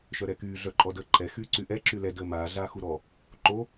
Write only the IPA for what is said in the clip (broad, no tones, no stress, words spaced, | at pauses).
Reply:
ʃœɾɛkyː ɮœǃʼɔdəːǃʼɛ xyːǀyʔɛ ǁylɛ dəːmaː ɮaːxuɾɔ | ǃo